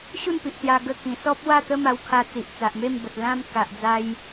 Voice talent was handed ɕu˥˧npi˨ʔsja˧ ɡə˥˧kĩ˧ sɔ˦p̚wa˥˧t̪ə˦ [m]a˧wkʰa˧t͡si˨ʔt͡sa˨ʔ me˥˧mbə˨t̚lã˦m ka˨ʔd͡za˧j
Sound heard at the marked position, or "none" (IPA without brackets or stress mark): m